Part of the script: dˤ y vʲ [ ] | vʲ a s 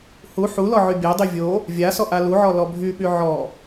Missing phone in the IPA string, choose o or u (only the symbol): o